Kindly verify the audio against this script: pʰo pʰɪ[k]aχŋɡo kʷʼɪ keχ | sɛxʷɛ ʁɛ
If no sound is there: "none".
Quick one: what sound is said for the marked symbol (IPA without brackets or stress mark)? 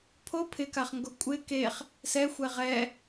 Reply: k